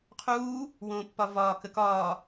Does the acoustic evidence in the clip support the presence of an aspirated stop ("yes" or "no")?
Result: yes